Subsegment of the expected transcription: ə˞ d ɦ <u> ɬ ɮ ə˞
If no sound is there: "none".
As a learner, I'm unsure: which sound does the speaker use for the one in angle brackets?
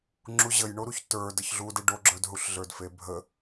u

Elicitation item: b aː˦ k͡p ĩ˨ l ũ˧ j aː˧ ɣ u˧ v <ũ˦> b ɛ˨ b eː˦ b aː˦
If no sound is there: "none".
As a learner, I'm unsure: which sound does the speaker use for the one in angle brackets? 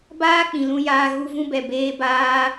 ũ˦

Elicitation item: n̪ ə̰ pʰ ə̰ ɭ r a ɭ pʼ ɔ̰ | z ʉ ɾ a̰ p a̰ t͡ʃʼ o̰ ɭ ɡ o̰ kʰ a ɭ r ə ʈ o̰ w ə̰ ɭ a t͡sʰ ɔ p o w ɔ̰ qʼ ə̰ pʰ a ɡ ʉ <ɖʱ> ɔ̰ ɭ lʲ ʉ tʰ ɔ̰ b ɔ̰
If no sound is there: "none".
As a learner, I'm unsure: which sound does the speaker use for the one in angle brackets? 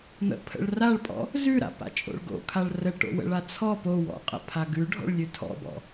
ɖʱ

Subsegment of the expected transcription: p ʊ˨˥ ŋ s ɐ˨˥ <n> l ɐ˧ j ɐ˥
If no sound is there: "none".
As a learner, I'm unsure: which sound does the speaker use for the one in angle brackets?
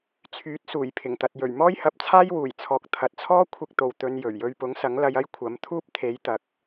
ŋ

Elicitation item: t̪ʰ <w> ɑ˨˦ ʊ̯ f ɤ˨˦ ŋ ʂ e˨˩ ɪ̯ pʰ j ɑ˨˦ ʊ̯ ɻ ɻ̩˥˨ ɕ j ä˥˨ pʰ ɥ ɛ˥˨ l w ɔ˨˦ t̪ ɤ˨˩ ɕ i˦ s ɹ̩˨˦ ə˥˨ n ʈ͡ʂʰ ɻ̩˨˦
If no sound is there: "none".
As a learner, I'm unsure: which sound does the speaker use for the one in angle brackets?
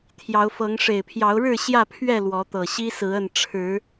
j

